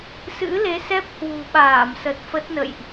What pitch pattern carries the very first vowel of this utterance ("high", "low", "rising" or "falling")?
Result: rising